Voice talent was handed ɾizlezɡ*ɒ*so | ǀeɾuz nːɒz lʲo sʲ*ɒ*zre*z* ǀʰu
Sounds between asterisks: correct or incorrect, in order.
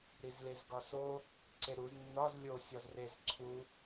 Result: correct, correct, correct

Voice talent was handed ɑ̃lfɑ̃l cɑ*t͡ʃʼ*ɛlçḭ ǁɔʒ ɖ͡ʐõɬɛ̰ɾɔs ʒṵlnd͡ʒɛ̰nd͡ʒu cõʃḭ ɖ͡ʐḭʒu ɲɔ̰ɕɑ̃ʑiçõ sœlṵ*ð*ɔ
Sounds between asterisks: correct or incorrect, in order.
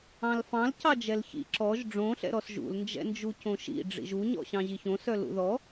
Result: incorrect: d͡ʒ, correct

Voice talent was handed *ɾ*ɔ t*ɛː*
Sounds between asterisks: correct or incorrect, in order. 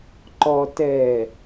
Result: incorrect: ǃ, correct

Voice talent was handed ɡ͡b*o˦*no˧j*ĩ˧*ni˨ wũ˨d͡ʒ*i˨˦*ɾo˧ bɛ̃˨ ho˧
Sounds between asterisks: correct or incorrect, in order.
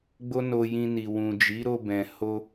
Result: correct, correct, correct

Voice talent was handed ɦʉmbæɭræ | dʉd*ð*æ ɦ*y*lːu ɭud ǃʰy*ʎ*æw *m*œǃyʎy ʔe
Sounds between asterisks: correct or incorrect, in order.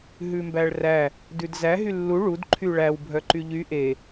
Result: incorrect: z, correct, incorrect: ɭ, incorrect: bʱ

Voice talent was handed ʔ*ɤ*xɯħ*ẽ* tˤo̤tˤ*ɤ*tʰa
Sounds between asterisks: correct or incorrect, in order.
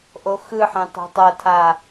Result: incorrect: o, correct, correct

